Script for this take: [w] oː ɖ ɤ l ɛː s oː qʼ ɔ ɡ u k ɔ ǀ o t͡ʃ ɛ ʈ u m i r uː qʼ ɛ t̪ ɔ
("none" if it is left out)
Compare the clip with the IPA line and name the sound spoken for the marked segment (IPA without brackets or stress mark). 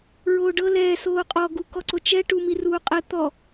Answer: ɹ